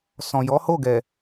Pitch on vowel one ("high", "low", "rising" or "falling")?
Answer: low